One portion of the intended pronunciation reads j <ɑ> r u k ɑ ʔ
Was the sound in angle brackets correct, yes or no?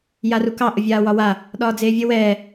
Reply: no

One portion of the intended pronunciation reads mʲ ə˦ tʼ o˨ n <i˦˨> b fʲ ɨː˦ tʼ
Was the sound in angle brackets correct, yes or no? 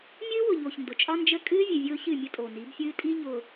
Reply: no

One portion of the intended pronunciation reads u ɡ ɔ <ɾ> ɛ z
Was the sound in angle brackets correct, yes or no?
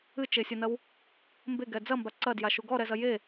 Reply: yes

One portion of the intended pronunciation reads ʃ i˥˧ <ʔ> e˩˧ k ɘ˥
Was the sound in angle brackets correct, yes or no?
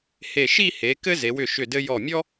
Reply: no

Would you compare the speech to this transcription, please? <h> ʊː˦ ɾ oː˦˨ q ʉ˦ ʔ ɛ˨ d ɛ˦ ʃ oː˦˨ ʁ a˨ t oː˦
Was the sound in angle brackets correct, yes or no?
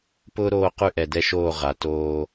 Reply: no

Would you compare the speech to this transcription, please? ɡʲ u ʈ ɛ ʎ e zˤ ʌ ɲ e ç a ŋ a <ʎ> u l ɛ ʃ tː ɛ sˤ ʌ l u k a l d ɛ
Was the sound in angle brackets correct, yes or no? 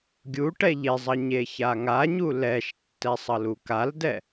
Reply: no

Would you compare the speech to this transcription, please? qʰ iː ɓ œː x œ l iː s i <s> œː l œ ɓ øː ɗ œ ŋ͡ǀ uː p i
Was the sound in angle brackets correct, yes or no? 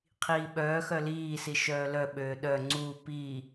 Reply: no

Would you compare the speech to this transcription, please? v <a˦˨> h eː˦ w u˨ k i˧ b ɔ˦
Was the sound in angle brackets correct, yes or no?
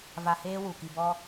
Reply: no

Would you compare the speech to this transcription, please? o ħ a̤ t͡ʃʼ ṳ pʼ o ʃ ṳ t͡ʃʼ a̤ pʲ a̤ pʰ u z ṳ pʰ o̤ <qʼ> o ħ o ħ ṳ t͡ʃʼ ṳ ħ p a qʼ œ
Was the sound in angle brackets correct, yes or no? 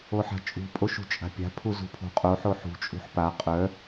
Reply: yes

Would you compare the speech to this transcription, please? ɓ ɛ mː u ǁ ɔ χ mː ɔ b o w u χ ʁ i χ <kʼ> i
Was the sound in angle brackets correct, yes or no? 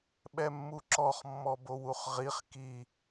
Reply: no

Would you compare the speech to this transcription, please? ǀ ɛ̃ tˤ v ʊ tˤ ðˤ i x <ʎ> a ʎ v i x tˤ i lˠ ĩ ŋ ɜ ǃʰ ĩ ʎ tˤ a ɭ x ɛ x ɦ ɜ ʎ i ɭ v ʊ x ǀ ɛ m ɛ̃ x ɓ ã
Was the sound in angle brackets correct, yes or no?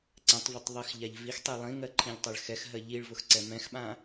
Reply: yes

